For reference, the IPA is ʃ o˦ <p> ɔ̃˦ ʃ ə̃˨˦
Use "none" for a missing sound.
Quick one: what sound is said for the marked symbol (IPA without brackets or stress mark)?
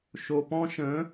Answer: p